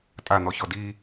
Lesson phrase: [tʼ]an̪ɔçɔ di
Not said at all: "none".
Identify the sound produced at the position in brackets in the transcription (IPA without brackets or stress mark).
tʼ